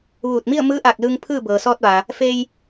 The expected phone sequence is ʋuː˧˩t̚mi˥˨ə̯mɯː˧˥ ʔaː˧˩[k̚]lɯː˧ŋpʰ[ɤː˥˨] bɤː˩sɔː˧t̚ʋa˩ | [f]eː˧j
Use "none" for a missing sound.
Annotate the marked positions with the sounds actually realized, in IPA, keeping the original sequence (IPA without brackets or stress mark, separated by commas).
k̚, ɯː˥˨, f